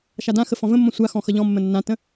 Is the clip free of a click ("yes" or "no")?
yes